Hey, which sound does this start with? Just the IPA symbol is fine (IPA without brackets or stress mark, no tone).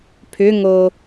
pʰ